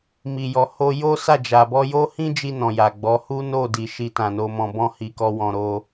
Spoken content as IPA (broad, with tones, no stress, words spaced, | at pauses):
mi˨jɔ˨ ho˧ jo˦sa˦˨d͡ʒa˨ bɔ˧jo˦hĩ˦d͡ʒi˧ nɔ̃˨ ja˨ɡ͡bɔ˨˦ hu˦no˦˨di˨ ʃi˧tã˨ no˨mɔ̃˨bɔ̃˧ hi˧kɔ˦wɔ̃˧ ɾo˧